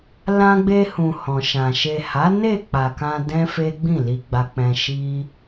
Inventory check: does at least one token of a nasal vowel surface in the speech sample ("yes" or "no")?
yes